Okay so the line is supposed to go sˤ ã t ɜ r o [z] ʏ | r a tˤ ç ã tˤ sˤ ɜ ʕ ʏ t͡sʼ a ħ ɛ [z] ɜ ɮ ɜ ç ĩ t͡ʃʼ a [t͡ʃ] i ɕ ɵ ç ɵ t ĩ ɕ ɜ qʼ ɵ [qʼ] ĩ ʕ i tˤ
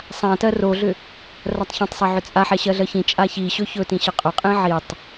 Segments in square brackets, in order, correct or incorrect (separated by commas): incorrect, incorrect, incorrect, correct